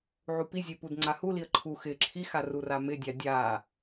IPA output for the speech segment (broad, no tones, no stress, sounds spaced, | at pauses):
ʕ u p i zʲ e p u d ŋ͡ǀ a h u l i ə̯ ǃʰ u x ɪ ǁʰ i x a r u r a m ɪ dʲ a dʲ a